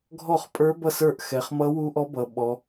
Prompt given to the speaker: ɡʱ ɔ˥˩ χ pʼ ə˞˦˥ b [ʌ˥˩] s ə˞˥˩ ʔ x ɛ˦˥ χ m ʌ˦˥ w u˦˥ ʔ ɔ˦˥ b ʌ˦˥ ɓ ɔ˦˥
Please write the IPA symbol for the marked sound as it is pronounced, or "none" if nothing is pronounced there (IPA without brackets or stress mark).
ʌ˥˩